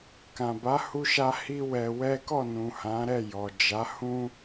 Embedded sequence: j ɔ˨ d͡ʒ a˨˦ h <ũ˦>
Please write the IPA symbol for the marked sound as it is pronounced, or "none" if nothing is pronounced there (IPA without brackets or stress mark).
ũ˦